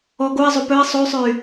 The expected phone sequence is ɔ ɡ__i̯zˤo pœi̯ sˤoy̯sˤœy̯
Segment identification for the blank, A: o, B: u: A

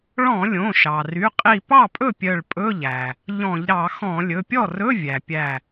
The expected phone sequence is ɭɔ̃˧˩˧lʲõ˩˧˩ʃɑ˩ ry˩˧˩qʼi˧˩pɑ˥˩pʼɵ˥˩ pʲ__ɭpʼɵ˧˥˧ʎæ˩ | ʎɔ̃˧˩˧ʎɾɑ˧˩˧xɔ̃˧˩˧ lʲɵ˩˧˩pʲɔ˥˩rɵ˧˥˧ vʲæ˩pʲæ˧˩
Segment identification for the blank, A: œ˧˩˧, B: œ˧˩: B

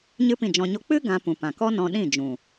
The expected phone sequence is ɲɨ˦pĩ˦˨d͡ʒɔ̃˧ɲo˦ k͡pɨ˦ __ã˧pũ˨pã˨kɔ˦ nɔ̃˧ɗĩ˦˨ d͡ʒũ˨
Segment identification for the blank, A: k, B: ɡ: B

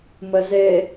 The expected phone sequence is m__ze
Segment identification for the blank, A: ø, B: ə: B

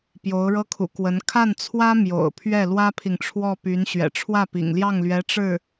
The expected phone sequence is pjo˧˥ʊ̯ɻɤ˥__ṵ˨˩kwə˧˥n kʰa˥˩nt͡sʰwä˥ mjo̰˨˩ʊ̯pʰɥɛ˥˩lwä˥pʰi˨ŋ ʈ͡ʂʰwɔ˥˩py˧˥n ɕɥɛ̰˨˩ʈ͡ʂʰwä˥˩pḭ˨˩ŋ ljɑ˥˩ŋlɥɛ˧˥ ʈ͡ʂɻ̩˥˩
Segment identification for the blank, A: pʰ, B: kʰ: B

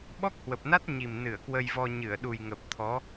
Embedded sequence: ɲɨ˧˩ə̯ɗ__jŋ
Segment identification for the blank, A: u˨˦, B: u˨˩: B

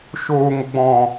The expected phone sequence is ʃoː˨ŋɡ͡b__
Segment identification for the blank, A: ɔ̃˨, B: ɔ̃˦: A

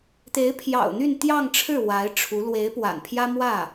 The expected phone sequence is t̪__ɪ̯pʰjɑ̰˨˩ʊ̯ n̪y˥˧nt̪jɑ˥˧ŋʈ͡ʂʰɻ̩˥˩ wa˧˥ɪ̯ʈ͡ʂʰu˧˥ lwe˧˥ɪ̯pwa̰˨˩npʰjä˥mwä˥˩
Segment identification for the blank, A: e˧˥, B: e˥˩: A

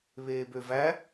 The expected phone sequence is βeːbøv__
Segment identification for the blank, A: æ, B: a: A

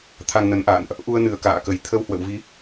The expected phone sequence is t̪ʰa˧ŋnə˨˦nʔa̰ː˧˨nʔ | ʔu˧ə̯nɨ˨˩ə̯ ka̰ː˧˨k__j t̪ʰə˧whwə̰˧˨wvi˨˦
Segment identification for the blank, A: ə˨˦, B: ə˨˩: B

